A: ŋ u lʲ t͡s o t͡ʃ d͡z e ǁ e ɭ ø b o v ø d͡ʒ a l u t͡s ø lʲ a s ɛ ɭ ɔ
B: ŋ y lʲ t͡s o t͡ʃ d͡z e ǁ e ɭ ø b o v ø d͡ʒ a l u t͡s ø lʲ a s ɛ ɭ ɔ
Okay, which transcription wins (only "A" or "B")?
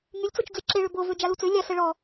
B